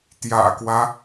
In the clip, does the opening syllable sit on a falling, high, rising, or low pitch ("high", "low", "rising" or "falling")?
low